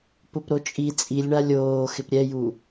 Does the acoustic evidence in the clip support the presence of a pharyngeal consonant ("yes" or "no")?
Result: no